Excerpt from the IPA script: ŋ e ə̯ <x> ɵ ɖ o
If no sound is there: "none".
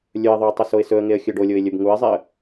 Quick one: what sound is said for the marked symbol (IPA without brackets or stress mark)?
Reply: xʲ